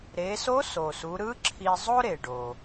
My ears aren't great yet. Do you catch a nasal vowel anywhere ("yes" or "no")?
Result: no